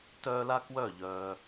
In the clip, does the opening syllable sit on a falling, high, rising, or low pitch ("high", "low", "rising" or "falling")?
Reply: high